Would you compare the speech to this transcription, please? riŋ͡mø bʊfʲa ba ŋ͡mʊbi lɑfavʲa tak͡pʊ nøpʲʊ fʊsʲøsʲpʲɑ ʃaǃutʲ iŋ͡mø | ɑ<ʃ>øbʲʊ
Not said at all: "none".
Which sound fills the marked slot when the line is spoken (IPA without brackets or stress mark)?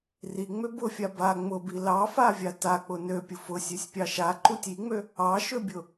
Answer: ʃ